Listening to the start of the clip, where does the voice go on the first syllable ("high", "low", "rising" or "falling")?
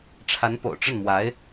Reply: rising